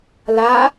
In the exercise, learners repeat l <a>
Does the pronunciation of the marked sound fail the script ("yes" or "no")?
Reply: no